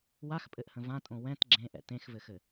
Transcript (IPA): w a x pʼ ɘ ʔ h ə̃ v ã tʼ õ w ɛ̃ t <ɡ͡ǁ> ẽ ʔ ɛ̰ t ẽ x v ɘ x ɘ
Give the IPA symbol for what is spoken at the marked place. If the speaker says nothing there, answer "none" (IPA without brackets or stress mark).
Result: ɡ͡ǁ